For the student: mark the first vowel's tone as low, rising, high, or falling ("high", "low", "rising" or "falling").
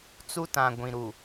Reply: high